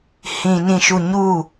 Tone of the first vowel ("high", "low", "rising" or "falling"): low